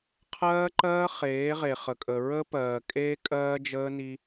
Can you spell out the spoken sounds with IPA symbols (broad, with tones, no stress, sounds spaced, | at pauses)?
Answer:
qʰ ɜː˦ ǃ ɜː˦ χ eː˨˦ ʁ e˨ χ ə˨ kʼ ə˨ ɹ ə˦ p ɜː˨ kʼ eː˦ kʼ ɜː˦ d͡ʒ əː˦ n i˦